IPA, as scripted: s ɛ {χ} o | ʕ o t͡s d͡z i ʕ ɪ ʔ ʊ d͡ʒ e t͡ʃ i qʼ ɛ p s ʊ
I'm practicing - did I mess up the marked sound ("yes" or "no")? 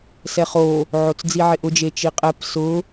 no